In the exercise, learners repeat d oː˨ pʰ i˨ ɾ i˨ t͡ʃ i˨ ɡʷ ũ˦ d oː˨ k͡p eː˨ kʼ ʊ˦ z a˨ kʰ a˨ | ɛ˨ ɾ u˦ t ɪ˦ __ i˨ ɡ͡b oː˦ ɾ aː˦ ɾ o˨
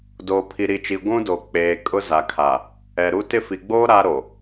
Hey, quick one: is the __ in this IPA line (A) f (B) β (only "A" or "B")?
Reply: A